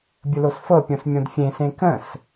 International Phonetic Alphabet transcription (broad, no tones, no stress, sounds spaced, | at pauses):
bʲ ə l o s f ɤ pʲ õ s mʲ õ d fʲ ẽ s ẽ k ə̃ s